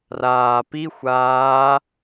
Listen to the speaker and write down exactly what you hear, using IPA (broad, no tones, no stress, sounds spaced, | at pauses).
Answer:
r aː p i xʷ aː